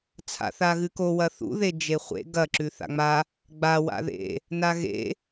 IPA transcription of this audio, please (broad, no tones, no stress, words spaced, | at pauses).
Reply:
t͡sʰa̰θaɣɨko wɐθṵ ðed͡ʒeχʷḛ ɡɐ ǁʉθa̰ŋ͡ma | ɡ͡ba wa̰ðḛ | naɣḛ